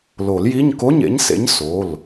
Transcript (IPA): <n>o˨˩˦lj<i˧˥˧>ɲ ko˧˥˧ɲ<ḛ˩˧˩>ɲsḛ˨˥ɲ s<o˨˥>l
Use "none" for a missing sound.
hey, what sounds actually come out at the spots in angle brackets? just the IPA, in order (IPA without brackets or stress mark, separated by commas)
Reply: l, i˧˥˧, ḛ˨˥, o˩˧˩